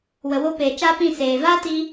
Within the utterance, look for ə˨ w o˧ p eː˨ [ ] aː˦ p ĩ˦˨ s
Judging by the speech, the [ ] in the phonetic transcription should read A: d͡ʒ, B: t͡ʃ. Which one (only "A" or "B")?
B